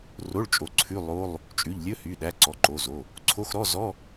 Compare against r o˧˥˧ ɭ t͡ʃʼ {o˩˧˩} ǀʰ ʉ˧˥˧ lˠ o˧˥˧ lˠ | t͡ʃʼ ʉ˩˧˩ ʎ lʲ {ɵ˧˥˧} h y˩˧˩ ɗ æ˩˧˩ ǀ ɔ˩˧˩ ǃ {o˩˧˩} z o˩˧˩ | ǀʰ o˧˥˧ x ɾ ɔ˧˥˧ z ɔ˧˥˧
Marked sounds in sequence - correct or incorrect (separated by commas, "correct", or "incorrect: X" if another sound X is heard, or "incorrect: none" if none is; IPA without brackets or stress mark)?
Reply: correct, correct, correct